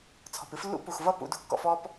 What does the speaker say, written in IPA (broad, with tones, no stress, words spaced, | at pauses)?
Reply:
t͡sʰɔ̤˨pɨ˨˦flːṵ˦ pu˨xvʌ˦˨ pṵ˧dṳ˧kːɔ̰˧f ɔ˦p